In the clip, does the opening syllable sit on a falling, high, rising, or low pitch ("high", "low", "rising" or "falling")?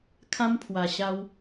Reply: high